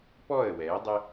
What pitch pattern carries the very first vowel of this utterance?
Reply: falling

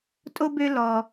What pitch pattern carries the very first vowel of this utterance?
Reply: high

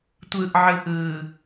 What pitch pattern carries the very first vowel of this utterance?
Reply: low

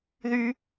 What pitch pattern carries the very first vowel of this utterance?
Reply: high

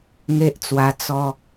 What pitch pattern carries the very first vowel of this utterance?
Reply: high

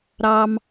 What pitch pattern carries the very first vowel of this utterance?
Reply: high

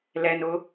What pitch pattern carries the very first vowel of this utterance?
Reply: low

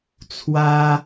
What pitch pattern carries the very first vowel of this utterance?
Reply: high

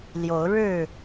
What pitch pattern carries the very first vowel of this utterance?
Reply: rising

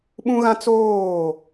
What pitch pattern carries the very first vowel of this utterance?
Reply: high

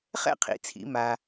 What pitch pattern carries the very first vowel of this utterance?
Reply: falling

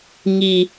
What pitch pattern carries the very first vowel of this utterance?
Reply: high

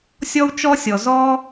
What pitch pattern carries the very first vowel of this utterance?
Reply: high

